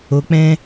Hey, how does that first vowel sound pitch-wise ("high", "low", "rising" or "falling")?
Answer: low